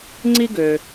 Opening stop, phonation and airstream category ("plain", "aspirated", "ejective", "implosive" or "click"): click